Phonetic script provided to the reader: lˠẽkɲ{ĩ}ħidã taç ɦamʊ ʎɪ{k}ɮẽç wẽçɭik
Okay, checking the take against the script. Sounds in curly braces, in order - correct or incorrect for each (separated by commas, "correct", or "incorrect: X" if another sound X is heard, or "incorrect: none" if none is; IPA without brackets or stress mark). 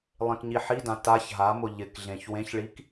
incorrect: i, correct